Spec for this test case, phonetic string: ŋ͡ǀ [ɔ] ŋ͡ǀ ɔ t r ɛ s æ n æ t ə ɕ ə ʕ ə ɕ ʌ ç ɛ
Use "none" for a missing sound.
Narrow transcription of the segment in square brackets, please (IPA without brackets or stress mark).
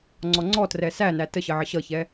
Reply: ɔ